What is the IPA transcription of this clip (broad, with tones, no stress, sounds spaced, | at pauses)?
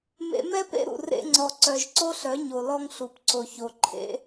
m ḛ˧ m ɛ˦ p ḛ˦ ɾ ṵ˨ r ḛ˧ ŋ͡ǀ ɔ˨ ǀ œ˨ ʒ ǀ o˦ ɬ œ˨˦ ɲ o˨ l ɔ˧ ŋ ɬ u˨ p ǀ o˨ ç o˨ ǃʰ ḛ˧